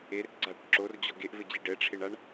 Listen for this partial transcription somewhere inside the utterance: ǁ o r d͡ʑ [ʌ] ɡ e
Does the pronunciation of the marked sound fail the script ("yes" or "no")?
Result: yes